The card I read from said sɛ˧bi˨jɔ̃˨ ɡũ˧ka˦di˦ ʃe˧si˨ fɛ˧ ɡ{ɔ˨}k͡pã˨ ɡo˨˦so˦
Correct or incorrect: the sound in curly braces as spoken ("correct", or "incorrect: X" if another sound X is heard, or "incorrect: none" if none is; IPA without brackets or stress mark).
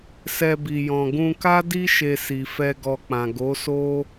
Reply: incorrect: ɔ˧